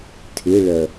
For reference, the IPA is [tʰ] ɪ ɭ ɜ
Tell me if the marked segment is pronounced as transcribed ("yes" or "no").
yes